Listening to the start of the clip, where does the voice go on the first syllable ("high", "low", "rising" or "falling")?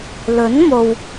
rising